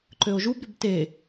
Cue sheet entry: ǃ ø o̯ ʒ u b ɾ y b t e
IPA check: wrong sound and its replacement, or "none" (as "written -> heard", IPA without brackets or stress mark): none